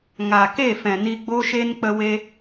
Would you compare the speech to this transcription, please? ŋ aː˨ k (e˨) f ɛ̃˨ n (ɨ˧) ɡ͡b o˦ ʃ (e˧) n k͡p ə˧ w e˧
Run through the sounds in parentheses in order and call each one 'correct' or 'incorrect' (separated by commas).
incorrect, incorrect, incorrect